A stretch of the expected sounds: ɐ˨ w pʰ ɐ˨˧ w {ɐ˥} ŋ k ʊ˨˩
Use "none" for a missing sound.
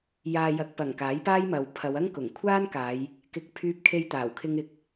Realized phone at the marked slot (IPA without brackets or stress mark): ɐ˥